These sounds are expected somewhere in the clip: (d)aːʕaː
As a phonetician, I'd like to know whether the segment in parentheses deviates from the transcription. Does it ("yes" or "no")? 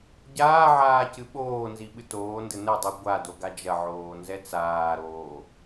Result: yes